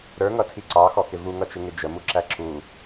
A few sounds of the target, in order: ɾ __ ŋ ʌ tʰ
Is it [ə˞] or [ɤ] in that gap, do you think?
ə˞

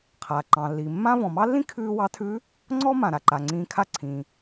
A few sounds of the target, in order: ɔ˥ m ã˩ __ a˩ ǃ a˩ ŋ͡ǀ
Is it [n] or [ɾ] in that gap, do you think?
ɾ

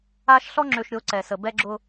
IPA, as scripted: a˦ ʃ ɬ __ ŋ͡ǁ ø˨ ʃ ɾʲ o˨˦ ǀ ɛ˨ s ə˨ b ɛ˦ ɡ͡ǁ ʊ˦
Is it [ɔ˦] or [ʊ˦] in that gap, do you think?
ɔ˦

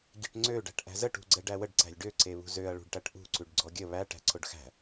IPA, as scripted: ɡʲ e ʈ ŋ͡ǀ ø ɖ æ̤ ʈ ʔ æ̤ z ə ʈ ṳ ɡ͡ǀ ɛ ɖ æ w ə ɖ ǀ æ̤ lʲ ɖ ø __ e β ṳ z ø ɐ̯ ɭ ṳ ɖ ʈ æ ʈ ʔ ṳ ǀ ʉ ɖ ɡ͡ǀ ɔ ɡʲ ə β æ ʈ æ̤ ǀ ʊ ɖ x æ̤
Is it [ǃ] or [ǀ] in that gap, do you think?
ǀ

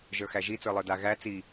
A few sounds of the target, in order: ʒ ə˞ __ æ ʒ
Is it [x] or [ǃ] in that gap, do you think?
x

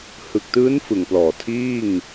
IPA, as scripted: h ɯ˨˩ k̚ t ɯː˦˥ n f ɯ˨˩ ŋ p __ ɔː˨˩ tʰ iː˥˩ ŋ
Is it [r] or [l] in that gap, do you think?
l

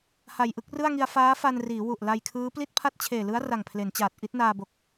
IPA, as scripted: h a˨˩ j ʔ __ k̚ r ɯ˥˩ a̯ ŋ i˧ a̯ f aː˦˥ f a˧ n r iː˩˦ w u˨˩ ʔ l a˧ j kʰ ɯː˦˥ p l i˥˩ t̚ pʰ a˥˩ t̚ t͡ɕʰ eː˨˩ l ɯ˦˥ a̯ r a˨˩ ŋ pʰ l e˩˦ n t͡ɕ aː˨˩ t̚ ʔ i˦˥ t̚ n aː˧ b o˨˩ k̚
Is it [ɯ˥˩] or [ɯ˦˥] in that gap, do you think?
ɯ˥˩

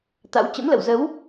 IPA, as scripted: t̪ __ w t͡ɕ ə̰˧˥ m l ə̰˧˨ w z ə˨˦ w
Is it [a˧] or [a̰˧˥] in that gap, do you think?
a̰˧˥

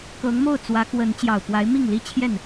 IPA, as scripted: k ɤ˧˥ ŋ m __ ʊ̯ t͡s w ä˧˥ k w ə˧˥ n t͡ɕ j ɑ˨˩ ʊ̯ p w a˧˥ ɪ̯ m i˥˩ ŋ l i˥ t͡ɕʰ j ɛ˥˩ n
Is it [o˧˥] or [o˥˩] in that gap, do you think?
o˥˩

